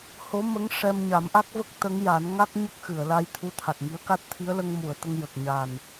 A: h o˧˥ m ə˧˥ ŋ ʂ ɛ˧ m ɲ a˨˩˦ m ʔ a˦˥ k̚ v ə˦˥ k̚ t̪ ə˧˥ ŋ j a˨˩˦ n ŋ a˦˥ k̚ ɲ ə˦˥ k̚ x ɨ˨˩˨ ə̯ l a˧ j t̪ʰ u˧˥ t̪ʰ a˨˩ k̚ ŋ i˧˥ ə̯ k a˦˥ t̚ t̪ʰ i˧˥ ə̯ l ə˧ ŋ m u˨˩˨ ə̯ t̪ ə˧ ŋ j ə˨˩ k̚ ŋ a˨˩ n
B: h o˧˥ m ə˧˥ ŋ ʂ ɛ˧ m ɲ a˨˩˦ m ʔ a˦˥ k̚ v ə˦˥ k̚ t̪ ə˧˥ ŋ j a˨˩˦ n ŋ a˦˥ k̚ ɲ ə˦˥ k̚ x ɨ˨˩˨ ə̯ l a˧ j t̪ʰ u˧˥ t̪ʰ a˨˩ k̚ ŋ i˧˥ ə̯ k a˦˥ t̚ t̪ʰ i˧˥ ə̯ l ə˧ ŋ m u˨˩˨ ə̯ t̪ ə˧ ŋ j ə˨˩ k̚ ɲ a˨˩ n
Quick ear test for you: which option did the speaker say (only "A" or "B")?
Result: B